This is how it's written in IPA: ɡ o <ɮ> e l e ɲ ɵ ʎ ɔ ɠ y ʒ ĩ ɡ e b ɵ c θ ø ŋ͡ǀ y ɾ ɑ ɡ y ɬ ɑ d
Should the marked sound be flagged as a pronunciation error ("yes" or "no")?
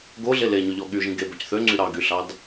no